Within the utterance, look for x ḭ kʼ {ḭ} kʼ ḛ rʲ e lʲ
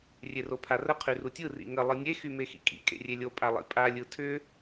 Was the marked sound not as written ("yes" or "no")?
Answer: no